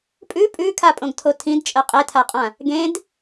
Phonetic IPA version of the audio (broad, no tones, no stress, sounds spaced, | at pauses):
pʼ ʉ pʼ ʉ kʰ a pʼ õ ɡ tʰ o tʰ ĩ d t͡ʃʼ ɜ qʼ e tʰ a qʼ ã | ɡ ẽ d